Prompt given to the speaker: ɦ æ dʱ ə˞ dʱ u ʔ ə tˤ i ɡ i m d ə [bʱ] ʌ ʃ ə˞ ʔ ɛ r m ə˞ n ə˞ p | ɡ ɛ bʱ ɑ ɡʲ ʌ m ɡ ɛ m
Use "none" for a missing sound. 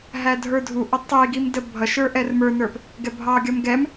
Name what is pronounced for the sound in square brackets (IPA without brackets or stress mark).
bʱ